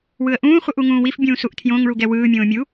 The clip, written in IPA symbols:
w ɯ ə̯ ʔ ũː χʷ ɯ ʔ u ŋ ũː w i f bʲ ũː s u ʔ tʰ j õ ŋ ɭ u ɡ ɛ w ɯː mʲ õː mʲ u

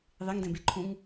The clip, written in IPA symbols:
ðˤ e ŋ d ɛ̃ b e ǃʰ ũ ŋ

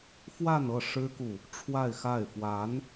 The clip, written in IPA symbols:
f w a˥˧ n ɤ˥˩ ʂ ɻ̩˥ k u˨ | ʈ͡ʂʰ w a˥˧ ɪ̯ x a˥˩ ɪ̯ f w a˧˥ n

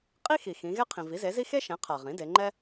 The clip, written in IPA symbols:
qʼ i˥ x i˩ x ĩ˩˧ ɣ ɛ˥ qʰ ĩ˩ v i˩˥ z e˩˥ z i˥ x e˥ ʃ ɛ̃˩˥ qʰ a˩ ʁ ĩ˩˥ d e˩˧ ŋ͡ǃ ɛ˥

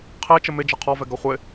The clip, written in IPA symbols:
qʰ e t͡ʃ ə m ɪ d͡ʒ ʌ qʰ ɔ v ɛ ɡ ʌ χʷ ɪ

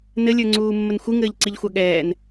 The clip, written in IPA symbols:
n ɘ lʲ ə˞ ŋ͡ǀ uː mː ə n xʷ ɨ ŋ ɘː ʎ ǀ i ʎ xʷ ɑ ɠ ɛː n

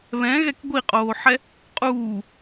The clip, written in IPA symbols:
β ɛ̃ ɣ ɛ k ɡʷ i qʼ oː ħ ɛ | qʼ uː

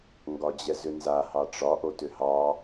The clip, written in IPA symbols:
ŋ ɡ ɒ d͡ʑ ɛ z ʏ n z a h ɑ ʈ͡ʂ ɒ ʔ o t ʏ h ɑ

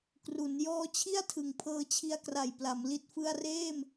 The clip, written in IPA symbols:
k r u˩˦ n j ɔː˦˥ t͡ɕʰ i˥˩ a̯ tʰ ɯ˩˦ ŋ pʰ ɤː˧ t͡ɕʰ i˦˥ a̯ k r a˨˩ j p l a˩˦ m l i˨˩ t̚ f ɯ˧ a̯ r eː˥˩ m

